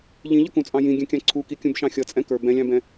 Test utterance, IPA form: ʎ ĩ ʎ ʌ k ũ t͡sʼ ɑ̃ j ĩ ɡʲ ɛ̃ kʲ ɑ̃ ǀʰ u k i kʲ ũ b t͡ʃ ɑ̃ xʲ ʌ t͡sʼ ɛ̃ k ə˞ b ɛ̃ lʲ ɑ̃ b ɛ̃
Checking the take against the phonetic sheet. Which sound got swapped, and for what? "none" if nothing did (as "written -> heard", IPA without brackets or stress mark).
t͡ʃ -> ʃ